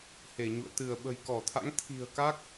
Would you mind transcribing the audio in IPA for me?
h e˧˩ ɲ ṵ˧˨ ə̯ t̪ ɨ˧˩ ə̯ ɓ ə̤˨˩ j k ɔ˧˩ t̪ʰ a̰˧˥ ŋ t̪ʰ i̤˨˩ ə̯ k a˦˥ k̚

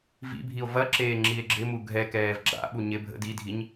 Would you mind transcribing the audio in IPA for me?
v ḭ bʱ i o̯ v ɐ ǁ eː ŋ͡ǁ i e̯ ɡ͡ǁ ɪ m u ɡʱ ɛ k ɛː v ɡ͡ǁ a̰ ɓ u ɲ ɪ bʱ ə̰ d i dʱ i ɲ

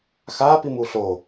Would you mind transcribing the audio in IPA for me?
x a p i m u ɬ o

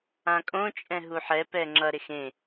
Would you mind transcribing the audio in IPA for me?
ã kʼ õ t͡ʃʼ ɛ̃ ɦ u ħ ɛ p ɛ ŋ͡ǁ ʌ ɾ e x ẽ

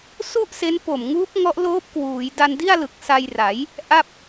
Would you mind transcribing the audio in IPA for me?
s u˥˩ ʔ s e˦˥ n p o˨˩ m ŋ uː˦˥ p̚ ŋ ɔ˦˥ ʔ l oː˦˥ p̚ k w uː˩˦ j d a˧ n d i˥˩ a̯ l ɯ˨˩ k̚ s a˧ j r a˩˦ j | ʔ a˥˩ p̚

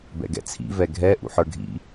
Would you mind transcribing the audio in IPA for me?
b ɛ̰ ɡ ɛ̰ t͡sʰ ḭ v ɛ ɡʱ ɛ ʔ ṵ ħ ə˞ ɡʱ ḭ

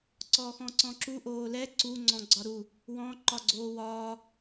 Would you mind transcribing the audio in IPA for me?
ǀ ɔː x ɔ̃ ǀ ɔ̃ ǁ u ʔ oː l ɛ ǀ u ŋ͡ǀ ɔ̃ ɡ͡ǀ ɒ ɾ u | w ɔ̃ ǃ ɒ ɡ͡ǀ oː w ɒː

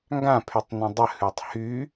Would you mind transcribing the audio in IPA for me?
ŋ ɡ ã pʰ y tˤ n ə̃ dˤ ə h ʉ tˤ h y

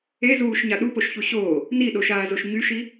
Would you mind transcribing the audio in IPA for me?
e z uː ʃ ɲ a ɗ u p o ʃ ç u ɕ oː | n i ɗ o ʃ aː z o ʃ ɲ y ʃ i

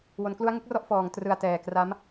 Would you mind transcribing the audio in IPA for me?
w o˩˦ n k l u˦˥ a̯ ŋ ɯ˥˩ k̚ r ɔ˥˩ ʔ f ɔː˩˦ ŋ t r ɯ˨˩ a̯ t ɛː˨˩ k r a˦˥ m

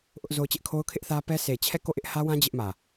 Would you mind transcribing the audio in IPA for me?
ʔ ʊ˦ ʔ z o˦ ʊ̯ t͡ɕ ɪ˦ ʔ kʰ o˦ ʊ̯ kʰ ɪ˦ ʔ θ ä˦ p ɛ˦ s e˨ t͡ɕʰ ɛ˦˨ k o˦˨ ʔ ɪ˦ ʔ h ä˦ w ã˦ d͡ʑ ɪ˦ ʔ m ä˨

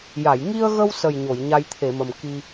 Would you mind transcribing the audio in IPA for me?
j a˨˩˨ j ŋ i˧ ə̯ ɣ ə˧ w s ə˨˩ j ɲ o˨˩˨ j ɲ a˧ j t̪ʰ e˨˩˨ m ə˨˩ m k i˧

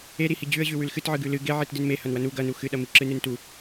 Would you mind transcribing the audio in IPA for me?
e ɾ i h i d͡ʑ ʉ ə̯ ʑ ʉ w ʉ l x ɨ t ʕ ɨ ɡ ʉ l ɨ ɡ e ʕ i t d ɨ n m e h ɐ n w ɐ n u ɡ ɐ n u x ɨ ɗ ɐ m i ǁ ɨ n ɨ n t u

